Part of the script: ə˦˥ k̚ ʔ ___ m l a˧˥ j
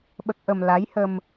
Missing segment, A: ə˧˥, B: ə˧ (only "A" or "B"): B